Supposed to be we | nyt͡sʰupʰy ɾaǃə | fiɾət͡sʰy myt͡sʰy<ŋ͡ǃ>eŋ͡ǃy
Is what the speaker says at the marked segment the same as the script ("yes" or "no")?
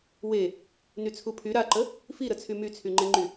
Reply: yes